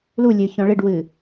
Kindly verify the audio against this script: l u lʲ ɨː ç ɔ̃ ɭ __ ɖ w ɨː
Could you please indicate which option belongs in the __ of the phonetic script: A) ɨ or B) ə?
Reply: A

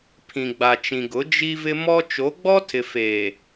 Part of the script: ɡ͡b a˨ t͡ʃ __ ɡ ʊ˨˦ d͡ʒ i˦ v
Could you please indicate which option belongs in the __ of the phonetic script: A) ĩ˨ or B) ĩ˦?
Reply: A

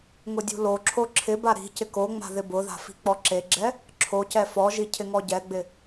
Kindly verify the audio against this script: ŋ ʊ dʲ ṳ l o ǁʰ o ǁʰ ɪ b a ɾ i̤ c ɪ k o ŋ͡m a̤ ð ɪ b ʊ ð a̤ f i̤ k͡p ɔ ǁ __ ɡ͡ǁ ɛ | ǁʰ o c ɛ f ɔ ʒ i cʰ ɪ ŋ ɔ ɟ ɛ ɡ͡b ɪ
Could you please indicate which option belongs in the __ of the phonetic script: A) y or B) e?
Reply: B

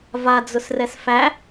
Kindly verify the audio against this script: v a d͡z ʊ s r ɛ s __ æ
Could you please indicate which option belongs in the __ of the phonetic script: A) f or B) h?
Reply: A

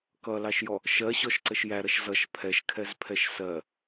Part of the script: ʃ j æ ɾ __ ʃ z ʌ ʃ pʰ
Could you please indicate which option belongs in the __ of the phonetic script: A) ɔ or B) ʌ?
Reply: B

